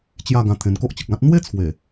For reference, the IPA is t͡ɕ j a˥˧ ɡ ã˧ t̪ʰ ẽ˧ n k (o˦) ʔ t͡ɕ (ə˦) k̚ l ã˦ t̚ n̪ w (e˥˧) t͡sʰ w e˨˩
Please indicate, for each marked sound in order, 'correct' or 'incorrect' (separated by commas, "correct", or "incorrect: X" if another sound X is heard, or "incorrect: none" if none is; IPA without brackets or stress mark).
correct, incorrect: ə˨, incorrect: e˦